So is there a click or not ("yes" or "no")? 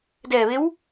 no